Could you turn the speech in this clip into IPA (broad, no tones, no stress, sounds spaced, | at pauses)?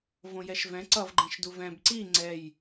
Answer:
v õ j ɛ ʃ v ɛ̃ ǀ ʌ v ɡ͡ǃ ɛ̃ ʃ d u v ɛ̃ b ǀ i ŋ͡ǀ ɛ j